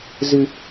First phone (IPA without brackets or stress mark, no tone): z